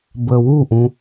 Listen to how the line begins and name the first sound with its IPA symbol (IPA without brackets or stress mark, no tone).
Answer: b